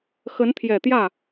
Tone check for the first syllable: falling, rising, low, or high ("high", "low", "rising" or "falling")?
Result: rising